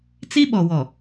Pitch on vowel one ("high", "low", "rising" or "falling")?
high